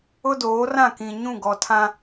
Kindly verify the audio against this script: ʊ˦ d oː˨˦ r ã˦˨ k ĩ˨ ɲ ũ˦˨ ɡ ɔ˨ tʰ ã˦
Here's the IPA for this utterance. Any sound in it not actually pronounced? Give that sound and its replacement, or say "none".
none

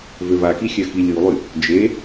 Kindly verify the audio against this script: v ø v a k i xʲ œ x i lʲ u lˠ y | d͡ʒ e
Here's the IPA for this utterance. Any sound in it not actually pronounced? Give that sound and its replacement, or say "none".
none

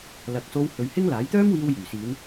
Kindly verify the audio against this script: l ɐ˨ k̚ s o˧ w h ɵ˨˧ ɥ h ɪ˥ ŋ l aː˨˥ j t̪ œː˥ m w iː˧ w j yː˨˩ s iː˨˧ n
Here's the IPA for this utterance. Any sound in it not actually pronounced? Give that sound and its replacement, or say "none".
none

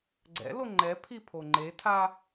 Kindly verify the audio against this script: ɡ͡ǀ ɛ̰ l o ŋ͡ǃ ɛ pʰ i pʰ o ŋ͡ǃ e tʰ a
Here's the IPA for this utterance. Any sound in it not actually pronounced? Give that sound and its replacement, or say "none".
none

